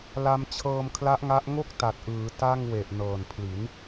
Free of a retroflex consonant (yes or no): yes